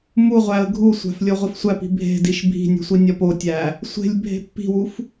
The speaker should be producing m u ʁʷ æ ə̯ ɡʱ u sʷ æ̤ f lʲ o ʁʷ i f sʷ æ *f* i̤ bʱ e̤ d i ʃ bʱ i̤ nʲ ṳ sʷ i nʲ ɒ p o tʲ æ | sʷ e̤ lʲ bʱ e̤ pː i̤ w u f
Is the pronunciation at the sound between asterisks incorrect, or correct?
incorrect: p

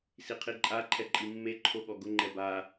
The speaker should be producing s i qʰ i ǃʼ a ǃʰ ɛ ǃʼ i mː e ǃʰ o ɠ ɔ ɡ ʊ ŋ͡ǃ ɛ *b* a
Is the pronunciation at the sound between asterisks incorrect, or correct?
correct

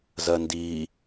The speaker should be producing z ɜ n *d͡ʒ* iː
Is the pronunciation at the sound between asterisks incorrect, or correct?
incorrect: d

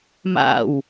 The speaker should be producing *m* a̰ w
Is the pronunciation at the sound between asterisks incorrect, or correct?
correct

